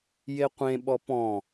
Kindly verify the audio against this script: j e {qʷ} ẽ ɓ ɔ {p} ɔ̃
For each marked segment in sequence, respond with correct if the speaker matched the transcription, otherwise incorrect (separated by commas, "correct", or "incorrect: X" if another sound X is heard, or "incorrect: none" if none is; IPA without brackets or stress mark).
correct, correct